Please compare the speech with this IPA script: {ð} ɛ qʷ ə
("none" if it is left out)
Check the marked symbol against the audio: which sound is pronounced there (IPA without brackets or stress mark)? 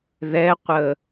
ð